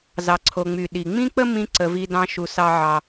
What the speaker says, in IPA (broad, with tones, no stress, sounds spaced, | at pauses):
z ɑ˩ ǀʰ o˩ ŋ͡m y˩ ɗ i˩ ŋ͡m ĩ˥ k͡p ə˥ m ĩ˥ ǀ ə˨ v i˦ d ɑ̃˦ ʃ u˨ s ɑ˦ ʕ ɑ˨